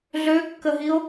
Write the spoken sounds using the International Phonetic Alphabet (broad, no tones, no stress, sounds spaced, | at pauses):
ɮ ø kː ə ɦ i o̯